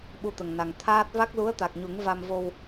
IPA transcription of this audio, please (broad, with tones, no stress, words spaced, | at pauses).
ɓu˧t̪ə˨˩ŋna˨˩ŋ t̪ʰaː˦˥t̚ va˦˥k̚lu˧˥ə̯t̪a˨˩k̚ɲu˨˩˦ŋ va˧mvo˧w